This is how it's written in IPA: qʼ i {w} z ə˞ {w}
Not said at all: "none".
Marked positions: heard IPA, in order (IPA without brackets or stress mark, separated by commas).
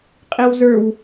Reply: w, w